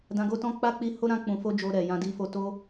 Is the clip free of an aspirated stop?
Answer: yes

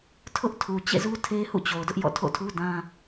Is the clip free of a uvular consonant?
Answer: yes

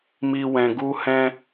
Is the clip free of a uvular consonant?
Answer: yes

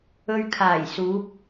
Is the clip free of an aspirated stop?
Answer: no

